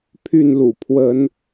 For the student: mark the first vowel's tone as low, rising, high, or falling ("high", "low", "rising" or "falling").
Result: falling